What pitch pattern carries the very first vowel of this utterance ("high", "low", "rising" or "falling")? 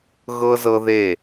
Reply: high